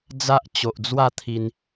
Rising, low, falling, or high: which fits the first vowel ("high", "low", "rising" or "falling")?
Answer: high